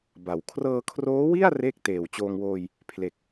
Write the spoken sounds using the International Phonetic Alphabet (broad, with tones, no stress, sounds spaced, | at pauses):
b a˨˩ w kʰ r ɤː˧ kʰ r oː˦˥ w i˥˩ a̯ r eː˥˩ k̚ t eː˨˩ w t͡ɕ oː˧ ŋ w oː˧ j | pʰ l e˨˩ k̚